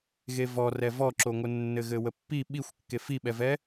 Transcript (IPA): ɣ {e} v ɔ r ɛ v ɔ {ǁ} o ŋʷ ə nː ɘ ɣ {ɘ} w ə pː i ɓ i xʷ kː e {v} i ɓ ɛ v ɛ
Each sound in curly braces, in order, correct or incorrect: correct, correct, correct, incorrect: f

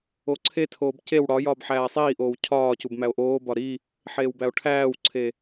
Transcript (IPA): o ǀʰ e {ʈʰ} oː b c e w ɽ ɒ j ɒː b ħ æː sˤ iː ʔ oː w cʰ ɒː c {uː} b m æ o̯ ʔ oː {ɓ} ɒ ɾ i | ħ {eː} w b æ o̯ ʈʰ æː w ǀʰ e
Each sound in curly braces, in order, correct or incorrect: incorrect: tʰ, incorrect: u, incorrect: b, correct

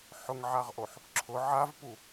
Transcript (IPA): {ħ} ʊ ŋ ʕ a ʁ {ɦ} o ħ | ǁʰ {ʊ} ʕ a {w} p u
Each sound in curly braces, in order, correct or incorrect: correct, incorrect: ʔ, correct, incorrect: v

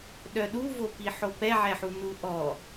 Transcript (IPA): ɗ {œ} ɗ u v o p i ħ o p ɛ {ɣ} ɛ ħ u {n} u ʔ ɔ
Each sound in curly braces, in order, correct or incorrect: correct, incorrect: ʕ, correct

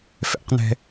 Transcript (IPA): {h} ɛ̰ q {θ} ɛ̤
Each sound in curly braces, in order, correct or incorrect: incorrect: f, incorrect: n

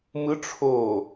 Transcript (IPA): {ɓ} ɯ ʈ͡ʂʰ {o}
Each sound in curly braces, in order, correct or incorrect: incorrect: m, correct

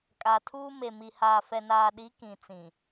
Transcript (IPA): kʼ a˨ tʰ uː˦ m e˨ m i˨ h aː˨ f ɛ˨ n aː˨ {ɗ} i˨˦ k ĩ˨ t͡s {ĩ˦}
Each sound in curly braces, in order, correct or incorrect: correct, incorrect: ĩ˨

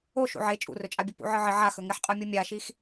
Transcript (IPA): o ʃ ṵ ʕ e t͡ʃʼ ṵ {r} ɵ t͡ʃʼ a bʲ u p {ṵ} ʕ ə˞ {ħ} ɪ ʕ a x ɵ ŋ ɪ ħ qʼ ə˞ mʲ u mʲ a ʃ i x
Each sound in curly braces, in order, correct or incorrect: correct, correct, incorrect: ʕ

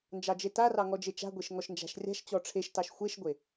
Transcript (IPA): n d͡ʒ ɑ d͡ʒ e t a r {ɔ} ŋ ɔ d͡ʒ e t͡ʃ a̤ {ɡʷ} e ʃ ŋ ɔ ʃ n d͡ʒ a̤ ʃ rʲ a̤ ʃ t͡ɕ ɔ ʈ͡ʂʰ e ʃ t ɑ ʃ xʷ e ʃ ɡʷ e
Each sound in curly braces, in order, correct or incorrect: incorrect: ɑ, correct

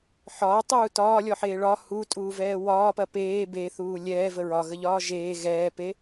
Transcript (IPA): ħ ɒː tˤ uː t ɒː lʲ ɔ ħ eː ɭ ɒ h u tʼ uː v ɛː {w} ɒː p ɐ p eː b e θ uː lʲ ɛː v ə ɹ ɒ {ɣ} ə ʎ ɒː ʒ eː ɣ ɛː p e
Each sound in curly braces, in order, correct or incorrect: correct, correct

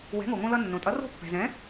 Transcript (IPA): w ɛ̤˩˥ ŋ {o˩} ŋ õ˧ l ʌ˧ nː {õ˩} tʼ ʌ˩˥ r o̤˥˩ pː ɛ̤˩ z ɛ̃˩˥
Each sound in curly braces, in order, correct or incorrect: correct, correct

